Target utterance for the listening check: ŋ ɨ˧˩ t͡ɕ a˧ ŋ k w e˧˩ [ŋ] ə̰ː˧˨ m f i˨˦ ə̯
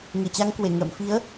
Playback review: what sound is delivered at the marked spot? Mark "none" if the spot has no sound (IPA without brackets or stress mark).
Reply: ŋ